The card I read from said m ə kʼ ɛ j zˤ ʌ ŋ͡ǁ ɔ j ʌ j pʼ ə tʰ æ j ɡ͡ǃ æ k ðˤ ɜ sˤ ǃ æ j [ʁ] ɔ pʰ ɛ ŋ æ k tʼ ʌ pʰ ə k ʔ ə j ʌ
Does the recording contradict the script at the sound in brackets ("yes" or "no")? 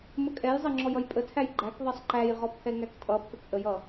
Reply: no